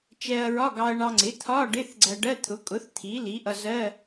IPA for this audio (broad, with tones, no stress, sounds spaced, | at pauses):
t͡ʃ ɛ˧ ɐ̯ ɹ ɒ˧˥˧ ɡ ɑ˧ ɐ̯ ɳ ɑ˧ ŋ͡ǀ ɪ˩˥ t̪ʰ ɒ˧˥˧ ɖ ɪ˧˥˧ θ ɡ͡ǀ æ˧ ɖ ɜ˧˥˧ t̪ʰ ʊ˩˥ kʼ ʊ˩˥ θ t̪ʰ i˩˥ l i˩˥ ʔ ʌ˧ z ɜ˧˥˧